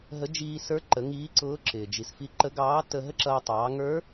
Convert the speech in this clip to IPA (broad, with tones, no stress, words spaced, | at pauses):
ɦə˧˥ d͡ʒiː˧sə˞˧˥ǃə˩˧ ŋiː˧˥ǀʊː˧˥ǁɪː˩ d͡ʒi˩sfi˧˥ǃə˧˥ ɡɑː˧˥ tə˧ɦə˥ǁʌː˧ tˤɑː˩˧ŋə˞˧˥